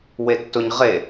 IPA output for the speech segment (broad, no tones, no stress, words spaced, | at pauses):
wetːʊɲ ʁe